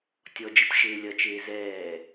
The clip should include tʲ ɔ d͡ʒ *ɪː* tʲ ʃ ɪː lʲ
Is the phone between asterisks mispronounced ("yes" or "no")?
yes